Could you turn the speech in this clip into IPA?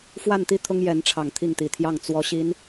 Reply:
f w a˥˧ n t̪ i˥˩ t̪ʰ ʊ˥ ŋ j ɛ˧˥ n ʈ͡ʂʰ ɑ˨˩ ŋ t̪ʰ i˥˩ ŋ t̪ i˨˩ t̪ʰ j ɑ˥˩ ŋ t͡s w ɔ˧˥ ɕ i˧˥ n

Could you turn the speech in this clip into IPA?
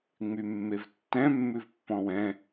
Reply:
ŋ͡m y mː e v tː ɛ̃ mː ʉ v pː ɔ̃ w ɛ̃

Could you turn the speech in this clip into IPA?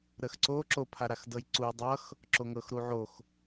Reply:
ɾ ə x ǀ o ǁ o pʰ a ɾ a x d ɤ j ǀ u j dˤ ʌ x | ǁ o ŋ ɤ x ɾ u ʕ o x

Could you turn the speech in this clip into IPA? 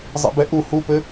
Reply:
zˤ ḭ b ɛ ʔ u h u p ɘ

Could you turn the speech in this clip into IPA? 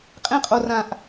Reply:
qʼ ẽ˧ qʼ o˨ r ã˨ ʔ

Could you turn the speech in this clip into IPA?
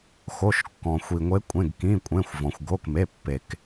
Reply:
x o˩˧˩ ʃ kː ɔ̃˩ xʷ i˩ ŋʷ e˨˦ kʷʼ ẽ˩˧˩ ɡ k ĩ˩˧˩ kʷʼ ẽ˩˧˩ xʷ v ɔ̃˩ xʷ ɡ o˩˧˩ k m e˩˧˩ pː e˩ k

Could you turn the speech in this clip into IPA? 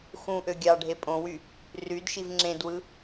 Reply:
x ũ ʔ ø ɡʲ ɑ ɖʱ e pʼ õ w y | r y d ʃ i v ŋ͡ǁ ẽ d w ɯ

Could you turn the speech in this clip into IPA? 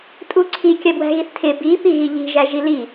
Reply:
tʼ u ǀʰ i kʲ ɜ b w æ̤ ɣ i θ tʰ ɪ b i p i ɣ i ʎ i̤ ʒ æ ʒ i l i

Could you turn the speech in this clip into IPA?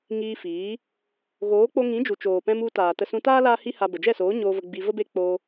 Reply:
ŋ iː˧ f iː˨˦ | ɣ oː˨˦ k͡p o˧ ŋ ĩ˨˦ d͡ʒ u˨ t͡ʃ oː˨ p ɛ̃˧ m u˧ t aː˨ t ə˧ s ũ˧ t aː˦ l aː˦ h i˦ h a˧ b ə˨ d͡ʒ ɛ˦˨ s oː˨˦ ɲ oː˧ v ə˧ ɡ͡b i˧ v ə˦ b e˦ k͡p oː˧

